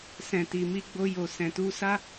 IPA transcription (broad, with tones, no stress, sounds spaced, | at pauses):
s ɛ̃˨ t i˨ m i˧ ɡ͡b o˧ j o˨ s ɛ̃˨ t u˧ s a˦